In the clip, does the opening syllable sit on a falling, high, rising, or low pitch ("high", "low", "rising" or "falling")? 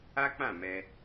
high